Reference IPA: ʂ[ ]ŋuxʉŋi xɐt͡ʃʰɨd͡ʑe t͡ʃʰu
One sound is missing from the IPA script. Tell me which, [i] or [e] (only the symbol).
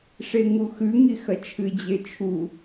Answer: e